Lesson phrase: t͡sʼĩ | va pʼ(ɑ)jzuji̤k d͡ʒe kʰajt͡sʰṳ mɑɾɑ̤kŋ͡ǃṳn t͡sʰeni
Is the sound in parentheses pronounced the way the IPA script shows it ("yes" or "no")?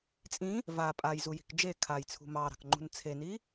no